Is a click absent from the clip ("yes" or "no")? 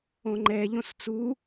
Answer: no